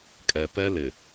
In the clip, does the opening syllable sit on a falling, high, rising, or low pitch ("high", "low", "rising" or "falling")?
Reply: low